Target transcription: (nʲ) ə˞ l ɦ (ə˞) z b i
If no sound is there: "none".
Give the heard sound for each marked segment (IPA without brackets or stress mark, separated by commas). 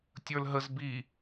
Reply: tʲ, ə